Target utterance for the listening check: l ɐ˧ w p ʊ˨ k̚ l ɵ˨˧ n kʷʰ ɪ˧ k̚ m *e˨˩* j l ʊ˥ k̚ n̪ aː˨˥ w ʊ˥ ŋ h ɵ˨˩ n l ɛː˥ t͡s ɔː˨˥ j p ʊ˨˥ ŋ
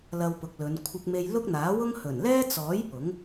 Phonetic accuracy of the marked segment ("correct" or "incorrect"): incorrect